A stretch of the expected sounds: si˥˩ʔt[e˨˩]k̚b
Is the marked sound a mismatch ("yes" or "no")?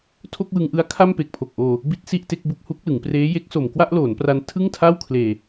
yes